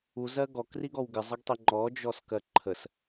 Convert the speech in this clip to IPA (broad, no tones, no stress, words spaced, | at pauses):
uzɜ ɡɔkriɡɔw ɡɪzˤəɡtˤi ŋ͡ǃɔd͡ʒɔskɜ ǃʰəs